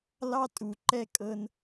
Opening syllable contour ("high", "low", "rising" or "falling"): high